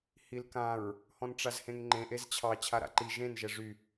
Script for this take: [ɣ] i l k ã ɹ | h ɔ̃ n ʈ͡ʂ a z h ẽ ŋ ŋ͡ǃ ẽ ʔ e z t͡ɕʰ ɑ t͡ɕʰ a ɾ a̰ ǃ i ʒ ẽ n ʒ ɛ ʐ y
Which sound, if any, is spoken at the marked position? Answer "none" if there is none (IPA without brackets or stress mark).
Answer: h